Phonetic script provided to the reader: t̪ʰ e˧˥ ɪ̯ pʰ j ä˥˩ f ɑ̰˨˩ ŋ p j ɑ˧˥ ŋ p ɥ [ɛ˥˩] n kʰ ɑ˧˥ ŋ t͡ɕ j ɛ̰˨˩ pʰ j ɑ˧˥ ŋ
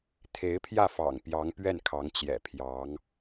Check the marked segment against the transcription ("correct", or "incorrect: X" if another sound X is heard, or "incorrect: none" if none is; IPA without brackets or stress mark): correct